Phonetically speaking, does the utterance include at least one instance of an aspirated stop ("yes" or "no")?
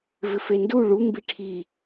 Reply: yes